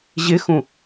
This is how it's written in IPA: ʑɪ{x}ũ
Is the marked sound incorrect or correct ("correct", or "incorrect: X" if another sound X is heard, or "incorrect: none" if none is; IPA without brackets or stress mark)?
correct